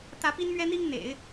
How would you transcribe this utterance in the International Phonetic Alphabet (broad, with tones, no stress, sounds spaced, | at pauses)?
t̪ ä˧˥ p i˥ n m ɥ ɛ˥ n̪ i˥ ŋ n̪ ḛ˨˩˦ ɪ̯